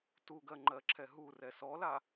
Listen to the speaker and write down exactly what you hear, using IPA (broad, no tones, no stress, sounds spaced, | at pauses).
t u ɡ ɜ ŋ͡ǃ ɜ ǁʰ ɛ ɦ u r ɛ s ɔ l a